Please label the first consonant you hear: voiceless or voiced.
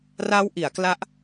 voiced